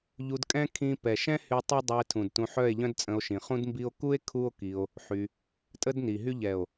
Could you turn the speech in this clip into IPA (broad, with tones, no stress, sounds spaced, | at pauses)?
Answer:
ʎ u˧ d kʼ ɛ̃˦ kʰ ĩ˧ p ɛ˨ ʃ ɛ̃˦ h y˧ tˤ œ˦ dˤ y˧ e̯ tʰ ũ˨ d t ũ˧ ħ œ˦˨ e̯ ʎ œ̃˦ d t͡sʼ ə̃˧ o̯ ʃ ĩ˨ χ ũ˦ d m b i˦ o̯ k u˦ e̯ kʰ u˦ o̯ k i˧ o̯ | ħ y˧ | tʼ ə˦ d n i˨ ɦ y˦ ʎ ɛ˨ o̯